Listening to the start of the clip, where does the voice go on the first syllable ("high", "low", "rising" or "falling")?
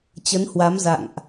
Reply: rising